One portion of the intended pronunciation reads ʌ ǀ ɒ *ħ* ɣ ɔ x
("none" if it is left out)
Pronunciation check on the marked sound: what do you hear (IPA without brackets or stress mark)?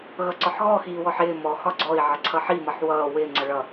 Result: ħ